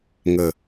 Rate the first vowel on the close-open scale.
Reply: mid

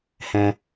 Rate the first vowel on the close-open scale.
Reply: mid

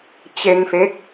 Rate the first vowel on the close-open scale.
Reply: mid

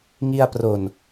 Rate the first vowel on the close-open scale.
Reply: close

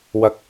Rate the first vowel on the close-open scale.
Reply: open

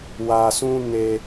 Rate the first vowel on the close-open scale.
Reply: open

